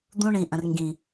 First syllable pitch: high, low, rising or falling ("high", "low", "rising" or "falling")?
high